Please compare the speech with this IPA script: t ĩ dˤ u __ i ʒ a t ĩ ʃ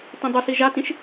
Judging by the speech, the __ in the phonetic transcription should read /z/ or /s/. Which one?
s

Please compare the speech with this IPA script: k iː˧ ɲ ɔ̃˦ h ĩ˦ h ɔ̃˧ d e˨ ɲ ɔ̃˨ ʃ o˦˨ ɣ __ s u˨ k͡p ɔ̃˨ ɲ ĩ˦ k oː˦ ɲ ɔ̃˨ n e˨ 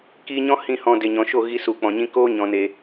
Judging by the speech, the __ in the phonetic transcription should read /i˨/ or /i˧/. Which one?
i˧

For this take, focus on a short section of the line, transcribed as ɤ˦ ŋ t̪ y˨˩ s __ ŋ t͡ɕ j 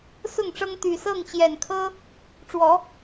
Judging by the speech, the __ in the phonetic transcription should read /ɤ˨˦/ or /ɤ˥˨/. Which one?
ɤ˥˨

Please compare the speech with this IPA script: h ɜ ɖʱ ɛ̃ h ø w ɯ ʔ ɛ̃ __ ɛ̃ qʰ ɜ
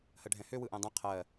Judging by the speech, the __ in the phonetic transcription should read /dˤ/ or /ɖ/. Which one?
dˤ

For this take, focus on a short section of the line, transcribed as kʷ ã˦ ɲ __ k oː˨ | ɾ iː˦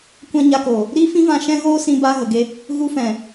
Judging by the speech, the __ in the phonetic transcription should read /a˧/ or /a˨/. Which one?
a˧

